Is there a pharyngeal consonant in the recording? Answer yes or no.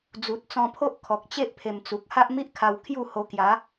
no